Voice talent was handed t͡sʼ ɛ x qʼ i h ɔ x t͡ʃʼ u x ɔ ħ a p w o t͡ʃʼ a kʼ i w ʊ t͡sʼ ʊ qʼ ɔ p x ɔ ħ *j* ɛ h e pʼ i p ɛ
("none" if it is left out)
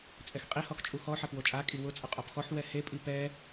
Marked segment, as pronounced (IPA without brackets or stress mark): w